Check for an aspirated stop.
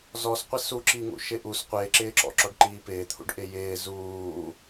present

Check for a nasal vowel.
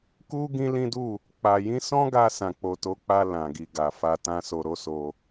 present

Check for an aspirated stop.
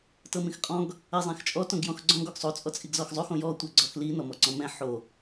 absent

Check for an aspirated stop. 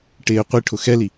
present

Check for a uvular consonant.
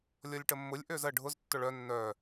absent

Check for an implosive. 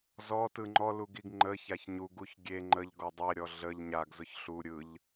absent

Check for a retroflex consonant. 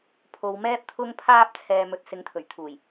absent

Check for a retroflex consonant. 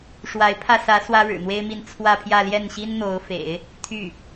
present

